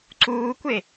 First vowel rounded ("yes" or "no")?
yes